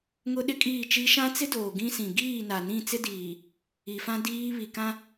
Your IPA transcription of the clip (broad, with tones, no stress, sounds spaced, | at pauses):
ŋ ʊ˦ ɗ ɪ˦ kʼ iː˦˨ t͡ʃ i˦ ʃ ã˦ t͡s ɪ˦ d oː˨ ɡ ĩ˦ s ĩ˨ ɡ iː˦˨ n a˨ n ĩ˦˨ t͡s ɪ˦ d iː˨ | i˨ f ã˦ d iː˦ β i˨ k ã˦